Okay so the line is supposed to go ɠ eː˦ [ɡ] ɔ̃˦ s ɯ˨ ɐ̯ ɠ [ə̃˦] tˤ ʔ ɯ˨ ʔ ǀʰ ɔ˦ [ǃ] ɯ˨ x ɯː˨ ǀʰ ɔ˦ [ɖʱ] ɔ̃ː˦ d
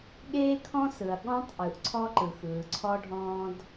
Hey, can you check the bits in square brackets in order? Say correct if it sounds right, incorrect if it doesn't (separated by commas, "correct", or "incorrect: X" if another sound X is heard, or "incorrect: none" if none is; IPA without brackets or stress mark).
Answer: incorrect: kʰ, incorrect: ɔ̃˦, correct, correct